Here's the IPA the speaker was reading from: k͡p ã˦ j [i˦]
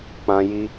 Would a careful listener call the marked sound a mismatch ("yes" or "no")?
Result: no